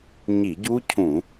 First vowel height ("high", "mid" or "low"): high